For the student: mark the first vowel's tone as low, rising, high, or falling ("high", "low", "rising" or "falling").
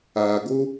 low